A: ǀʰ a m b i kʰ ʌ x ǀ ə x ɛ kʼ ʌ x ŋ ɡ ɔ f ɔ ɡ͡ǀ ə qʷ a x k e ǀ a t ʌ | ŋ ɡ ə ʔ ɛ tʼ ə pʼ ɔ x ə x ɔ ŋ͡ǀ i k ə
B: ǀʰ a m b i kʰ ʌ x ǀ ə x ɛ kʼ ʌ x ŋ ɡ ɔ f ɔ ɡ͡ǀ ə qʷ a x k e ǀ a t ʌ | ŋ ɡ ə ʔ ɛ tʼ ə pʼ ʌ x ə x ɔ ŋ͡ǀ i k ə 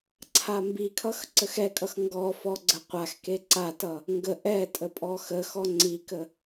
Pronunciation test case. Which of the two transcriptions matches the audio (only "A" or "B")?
A